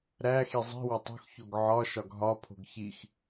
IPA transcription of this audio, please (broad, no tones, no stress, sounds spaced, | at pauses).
ɾ æ x i zˤ i̤ w ɒ tˤ o̤ x ç o ɡ ʕ ɒ ʃ ɒ ɡ ɦ ɒ pʰ o̤ ɡ ç i x